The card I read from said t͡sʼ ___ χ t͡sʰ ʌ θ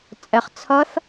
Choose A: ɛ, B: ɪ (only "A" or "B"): A